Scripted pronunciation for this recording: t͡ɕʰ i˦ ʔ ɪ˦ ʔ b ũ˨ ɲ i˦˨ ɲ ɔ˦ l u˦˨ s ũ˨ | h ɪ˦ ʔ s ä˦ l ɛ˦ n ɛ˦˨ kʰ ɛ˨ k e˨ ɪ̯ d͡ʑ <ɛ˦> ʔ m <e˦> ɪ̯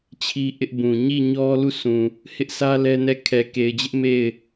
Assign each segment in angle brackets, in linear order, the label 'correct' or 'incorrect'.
incorrect: ɪ˦, incorrect: e˦˨

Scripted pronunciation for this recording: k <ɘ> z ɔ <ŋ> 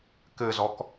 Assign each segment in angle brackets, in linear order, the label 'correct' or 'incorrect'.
correct, incorrect: k

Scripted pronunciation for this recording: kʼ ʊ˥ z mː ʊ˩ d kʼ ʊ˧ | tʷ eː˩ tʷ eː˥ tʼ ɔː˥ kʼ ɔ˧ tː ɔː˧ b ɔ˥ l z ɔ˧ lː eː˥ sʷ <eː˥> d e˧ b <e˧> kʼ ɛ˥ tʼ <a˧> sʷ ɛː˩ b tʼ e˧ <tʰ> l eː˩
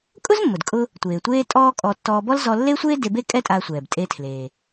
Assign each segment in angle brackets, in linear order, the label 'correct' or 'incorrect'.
correct, incorrect: e˥, incorrect: aː˧, correct

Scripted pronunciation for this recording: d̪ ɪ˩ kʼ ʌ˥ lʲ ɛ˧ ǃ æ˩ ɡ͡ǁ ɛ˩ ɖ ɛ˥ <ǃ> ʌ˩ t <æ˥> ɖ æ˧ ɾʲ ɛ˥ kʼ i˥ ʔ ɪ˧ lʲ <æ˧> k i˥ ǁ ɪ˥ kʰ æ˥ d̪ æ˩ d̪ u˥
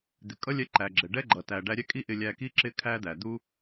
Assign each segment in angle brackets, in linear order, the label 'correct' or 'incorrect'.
incorrect: ɡ͡ǃ, incorrect: æ˩, correct

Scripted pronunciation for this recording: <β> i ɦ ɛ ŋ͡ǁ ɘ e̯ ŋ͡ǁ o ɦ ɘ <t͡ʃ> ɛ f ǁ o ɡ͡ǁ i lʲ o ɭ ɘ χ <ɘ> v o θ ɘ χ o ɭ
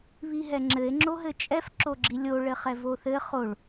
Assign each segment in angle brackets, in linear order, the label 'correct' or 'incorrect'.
correct, incorrect: t͡ʃʼ, incorrect: ɛ

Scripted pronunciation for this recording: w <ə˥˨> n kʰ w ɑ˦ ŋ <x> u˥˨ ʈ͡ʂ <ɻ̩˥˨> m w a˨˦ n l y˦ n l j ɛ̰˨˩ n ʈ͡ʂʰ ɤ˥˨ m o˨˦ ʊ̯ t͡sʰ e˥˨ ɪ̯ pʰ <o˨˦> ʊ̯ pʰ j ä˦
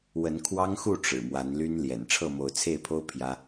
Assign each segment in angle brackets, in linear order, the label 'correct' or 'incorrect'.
incorrect: ə˨˦, correct, incorrect: ɻ̩˨˩, incorrect: o˦

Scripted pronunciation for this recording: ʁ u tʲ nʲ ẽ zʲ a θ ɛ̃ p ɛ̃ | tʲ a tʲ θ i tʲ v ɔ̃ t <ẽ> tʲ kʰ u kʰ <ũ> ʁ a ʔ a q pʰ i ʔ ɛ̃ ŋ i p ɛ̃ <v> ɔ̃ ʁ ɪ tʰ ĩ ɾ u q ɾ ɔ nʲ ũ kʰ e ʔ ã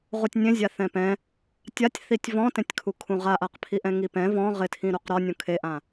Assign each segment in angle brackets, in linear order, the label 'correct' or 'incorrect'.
correct, correct, correct

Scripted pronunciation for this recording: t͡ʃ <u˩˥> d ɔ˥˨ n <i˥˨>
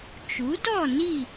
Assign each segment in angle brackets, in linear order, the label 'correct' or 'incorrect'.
correct, correct

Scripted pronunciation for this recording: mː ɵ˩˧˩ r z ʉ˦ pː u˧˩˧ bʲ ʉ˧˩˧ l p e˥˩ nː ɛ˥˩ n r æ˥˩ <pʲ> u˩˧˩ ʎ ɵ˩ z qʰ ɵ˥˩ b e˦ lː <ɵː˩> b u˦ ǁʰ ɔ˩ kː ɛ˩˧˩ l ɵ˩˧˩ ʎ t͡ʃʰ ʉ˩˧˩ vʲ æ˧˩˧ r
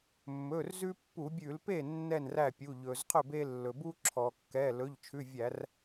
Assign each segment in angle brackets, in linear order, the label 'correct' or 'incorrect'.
correct, incorrect: ɵ˩

